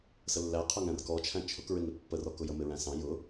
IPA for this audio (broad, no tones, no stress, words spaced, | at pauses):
səlːæ qʰʊŋæ̃rkɔt͡ʃʰæ̃ t͡ʃʰʊkɹɪŋɪ pːərɔkʊjə mɪɹæ̃sɑ̃ jʊ